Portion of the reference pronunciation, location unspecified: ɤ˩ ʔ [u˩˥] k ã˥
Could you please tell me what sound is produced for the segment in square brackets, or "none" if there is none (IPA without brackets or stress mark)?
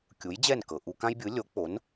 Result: u˧